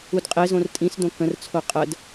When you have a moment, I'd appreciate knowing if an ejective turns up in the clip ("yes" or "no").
yes